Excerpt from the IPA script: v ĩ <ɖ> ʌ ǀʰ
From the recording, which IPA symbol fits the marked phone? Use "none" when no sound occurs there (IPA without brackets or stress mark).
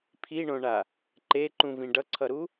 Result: ɖ